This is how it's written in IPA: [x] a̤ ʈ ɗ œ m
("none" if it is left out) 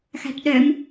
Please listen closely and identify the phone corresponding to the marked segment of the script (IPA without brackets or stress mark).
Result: x